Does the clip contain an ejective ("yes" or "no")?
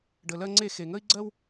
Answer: no